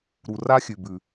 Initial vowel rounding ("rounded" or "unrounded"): rounded